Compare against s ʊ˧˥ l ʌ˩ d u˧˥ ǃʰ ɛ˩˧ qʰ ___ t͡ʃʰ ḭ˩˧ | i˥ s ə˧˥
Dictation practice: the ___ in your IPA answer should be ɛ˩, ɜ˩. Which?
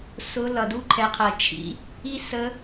ɜ˩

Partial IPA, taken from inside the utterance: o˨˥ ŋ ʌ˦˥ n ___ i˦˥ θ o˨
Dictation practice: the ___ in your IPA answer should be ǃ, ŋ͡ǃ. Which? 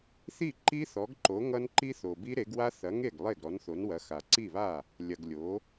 ǃ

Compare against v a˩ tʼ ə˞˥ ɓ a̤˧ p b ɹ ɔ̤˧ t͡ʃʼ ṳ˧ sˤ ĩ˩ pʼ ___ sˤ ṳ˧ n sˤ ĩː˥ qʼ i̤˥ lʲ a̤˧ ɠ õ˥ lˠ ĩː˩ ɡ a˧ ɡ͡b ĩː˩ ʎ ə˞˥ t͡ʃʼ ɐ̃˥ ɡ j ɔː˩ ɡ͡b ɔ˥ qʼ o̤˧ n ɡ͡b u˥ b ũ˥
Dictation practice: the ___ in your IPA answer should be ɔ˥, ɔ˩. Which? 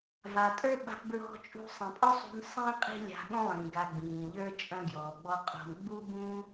ɔ˥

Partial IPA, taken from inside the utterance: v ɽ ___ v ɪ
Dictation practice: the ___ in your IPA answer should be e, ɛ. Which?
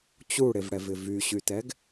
ɛ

